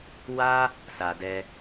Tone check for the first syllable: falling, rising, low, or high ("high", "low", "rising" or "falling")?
high